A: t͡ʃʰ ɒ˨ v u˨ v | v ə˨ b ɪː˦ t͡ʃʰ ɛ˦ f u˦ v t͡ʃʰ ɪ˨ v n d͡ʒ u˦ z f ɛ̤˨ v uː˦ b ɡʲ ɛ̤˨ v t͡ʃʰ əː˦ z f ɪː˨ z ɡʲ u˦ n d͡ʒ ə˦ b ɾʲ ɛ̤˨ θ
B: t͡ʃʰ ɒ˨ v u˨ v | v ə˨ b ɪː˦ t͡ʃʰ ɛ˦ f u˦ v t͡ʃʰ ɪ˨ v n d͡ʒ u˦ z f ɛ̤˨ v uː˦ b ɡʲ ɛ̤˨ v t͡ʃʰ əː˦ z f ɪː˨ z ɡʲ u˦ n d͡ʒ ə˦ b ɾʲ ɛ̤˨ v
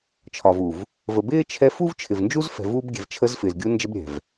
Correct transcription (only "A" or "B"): B